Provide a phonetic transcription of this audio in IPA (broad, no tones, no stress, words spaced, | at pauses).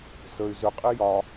səy̯ zʏqʼi jɒ